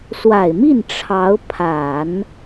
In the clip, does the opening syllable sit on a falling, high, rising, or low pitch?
low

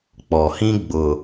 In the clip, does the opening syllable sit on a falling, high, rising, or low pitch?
low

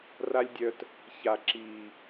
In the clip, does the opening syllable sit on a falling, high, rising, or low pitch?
high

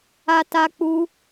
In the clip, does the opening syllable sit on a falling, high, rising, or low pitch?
high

